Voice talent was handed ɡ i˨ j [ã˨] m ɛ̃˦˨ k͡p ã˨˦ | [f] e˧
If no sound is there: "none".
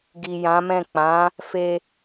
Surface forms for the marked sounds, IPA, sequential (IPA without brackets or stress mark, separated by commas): ã˨˦, f